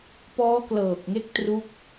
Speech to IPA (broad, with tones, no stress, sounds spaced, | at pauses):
p ɔː˦˥ k l ɤː˨˩ k̚ ŋ e˦˥ k̚ t r u˦˥ k̚